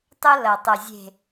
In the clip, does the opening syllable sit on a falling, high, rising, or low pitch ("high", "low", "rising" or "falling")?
high